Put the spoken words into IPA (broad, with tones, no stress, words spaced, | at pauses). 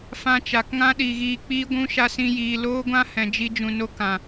fã˧t͡ʃa˨kŋã˦ɗi˨ ɣiː˧k͡piː˦ɡʷũ˦ ʃa˧sĩ˧jiː˨ loː˦ɡʷã˦hɛ̃˨ d͡ʒi˧d͡ʒũ˨ no˧ kã˨